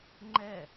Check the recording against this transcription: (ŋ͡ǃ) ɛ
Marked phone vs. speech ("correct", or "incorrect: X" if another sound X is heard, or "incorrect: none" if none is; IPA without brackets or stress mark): correct